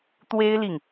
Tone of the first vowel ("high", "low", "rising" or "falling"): high